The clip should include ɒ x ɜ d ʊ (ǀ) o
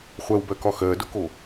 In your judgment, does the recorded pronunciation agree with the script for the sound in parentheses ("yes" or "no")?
no